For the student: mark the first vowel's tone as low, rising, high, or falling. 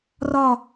falling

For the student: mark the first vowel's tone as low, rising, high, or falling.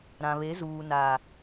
low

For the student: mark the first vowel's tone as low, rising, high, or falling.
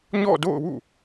falling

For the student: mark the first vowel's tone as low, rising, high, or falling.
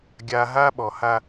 low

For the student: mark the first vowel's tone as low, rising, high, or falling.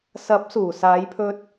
rising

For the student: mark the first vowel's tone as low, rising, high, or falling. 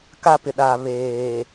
high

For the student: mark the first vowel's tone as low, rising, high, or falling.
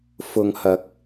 low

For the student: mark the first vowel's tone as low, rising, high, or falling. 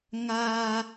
high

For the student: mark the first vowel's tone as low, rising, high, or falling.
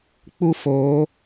high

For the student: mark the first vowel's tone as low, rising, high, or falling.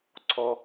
high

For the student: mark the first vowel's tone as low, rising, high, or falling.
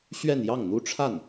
falling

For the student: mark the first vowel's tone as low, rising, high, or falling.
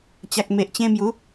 low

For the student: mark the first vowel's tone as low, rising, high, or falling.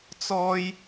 high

